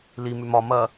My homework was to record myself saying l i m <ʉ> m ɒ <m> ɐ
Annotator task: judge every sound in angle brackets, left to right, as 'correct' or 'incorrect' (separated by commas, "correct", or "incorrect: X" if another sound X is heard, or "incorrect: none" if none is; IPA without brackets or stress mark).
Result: correct, correct